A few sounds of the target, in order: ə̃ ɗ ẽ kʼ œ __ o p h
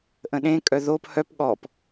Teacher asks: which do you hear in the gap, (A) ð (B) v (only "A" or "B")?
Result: A